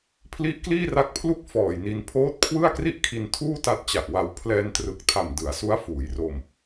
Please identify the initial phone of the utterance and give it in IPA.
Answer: pʰ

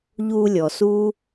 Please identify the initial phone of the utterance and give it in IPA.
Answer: ʎ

